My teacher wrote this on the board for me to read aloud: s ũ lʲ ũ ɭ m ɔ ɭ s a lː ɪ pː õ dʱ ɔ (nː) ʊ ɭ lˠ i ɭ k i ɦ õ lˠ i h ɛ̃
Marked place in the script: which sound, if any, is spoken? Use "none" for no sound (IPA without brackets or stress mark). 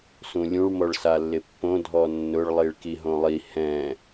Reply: nː